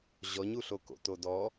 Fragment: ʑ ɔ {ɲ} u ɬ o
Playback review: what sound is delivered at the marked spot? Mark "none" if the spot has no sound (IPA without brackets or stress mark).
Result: ɲ